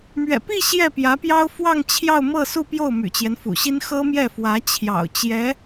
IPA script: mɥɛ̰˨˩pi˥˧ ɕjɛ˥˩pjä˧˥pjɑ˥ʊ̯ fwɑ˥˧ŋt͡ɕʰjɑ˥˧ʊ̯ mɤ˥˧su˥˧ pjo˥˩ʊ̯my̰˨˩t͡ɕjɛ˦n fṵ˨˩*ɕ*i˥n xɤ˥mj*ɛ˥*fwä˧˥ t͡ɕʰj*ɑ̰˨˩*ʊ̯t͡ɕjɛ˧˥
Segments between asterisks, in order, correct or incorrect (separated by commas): correct, incorrect, correct